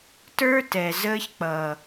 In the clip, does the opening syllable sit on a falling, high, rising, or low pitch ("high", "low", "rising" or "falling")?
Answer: high